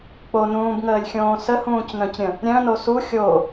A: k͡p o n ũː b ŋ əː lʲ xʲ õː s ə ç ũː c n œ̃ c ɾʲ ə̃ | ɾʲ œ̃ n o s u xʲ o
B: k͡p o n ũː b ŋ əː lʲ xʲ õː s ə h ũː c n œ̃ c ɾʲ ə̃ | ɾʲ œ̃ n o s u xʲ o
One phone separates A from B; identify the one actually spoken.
B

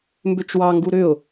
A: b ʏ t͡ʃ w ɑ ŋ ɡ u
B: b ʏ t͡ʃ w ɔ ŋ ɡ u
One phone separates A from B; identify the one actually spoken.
A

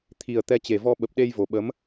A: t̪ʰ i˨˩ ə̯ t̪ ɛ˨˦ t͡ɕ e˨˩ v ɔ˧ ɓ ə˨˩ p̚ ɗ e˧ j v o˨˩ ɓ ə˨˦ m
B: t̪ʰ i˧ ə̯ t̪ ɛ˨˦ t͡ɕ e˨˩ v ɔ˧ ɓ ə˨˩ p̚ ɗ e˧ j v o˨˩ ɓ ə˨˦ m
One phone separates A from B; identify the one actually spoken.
A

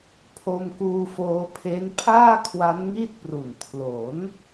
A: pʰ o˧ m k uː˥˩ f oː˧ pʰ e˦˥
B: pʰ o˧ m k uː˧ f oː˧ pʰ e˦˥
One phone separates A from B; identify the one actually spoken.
B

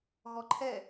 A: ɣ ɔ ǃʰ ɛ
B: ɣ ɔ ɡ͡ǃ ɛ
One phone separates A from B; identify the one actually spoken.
A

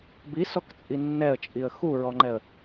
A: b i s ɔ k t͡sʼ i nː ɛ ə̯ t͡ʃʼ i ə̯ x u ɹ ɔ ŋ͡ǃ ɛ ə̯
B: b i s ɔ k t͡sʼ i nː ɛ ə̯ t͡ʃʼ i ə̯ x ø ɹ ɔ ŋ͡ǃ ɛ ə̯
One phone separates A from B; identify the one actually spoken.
A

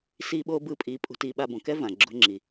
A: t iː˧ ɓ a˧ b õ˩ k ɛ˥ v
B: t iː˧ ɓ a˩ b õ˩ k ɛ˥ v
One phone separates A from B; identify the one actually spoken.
A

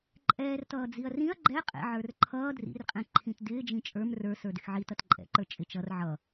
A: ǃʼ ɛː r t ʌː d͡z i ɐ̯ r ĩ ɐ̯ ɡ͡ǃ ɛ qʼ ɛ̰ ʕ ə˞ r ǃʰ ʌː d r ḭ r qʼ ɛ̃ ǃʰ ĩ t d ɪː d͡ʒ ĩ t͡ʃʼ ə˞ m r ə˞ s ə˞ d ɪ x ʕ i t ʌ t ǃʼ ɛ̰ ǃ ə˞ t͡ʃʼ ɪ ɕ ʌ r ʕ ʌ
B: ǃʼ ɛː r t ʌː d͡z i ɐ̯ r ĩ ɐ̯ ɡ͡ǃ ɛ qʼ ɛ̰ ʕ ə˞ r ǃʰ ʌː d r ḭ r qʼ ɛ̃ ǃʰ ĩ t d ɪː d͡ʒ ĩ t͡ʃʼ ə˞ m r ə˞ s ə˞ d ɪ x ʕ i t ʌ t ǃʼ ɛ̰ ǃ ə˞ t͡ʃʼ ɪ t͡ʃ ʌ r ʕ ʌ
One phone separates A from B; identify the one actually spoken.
B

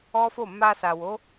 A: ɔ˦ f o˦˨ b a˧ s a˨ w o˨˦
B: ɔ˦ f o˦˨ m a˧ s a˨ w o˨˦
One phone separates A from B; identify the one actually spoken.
B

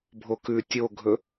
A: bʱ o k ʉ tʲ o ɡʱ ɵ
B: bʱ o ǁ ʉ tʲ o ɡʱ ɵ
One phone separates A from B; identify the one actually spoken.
A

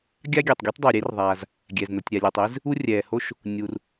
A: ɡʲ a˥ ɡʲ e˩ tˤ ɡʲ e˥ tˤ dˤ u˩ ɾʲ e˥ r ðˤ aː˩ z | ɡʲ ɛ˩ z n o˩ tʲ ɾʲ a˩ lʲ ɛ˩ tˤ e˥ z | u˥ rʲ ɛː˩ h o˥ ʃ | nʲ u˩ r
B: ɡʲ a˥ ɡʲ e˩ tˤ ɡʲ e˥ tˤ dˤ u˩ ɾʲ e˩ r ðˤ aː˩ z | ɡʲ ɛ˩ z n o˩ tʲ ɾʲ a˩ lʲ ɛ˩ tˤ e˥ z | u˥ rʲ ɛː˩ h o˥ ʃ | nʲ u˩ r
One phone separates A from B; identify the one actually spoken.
A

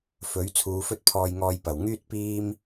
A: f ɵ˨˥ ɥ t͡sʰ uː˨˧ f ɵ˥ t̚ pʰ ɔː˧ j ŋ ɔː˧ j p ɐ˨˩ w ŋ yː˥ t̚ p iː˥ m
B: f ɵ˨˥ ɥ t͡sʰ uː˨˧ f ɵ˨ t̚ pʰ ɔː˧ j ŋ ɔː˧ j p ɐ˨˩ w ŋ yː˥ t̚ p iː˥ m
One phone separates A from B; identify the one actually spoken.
A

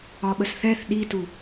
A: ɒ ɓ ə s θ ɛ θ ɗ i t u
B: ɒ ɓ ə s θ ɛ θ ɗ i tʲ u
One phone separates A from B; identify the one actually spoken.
A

